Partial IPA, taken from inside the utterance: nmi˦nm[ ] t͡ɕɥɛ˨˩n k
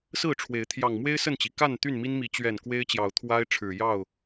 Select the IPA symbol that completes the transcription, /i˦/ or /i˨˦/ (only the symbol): i˨˦